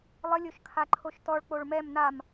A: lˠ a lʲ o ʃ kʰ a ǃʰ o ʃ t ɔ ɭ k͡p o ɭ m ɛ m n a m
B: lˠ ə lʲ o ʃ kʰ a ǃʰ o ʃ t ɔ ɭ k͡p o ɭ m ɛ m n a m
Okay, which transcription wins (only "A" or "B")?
B